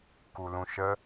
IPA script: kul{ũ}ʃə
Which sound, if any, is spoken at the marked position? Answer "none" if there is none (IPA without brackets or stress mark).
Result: ũ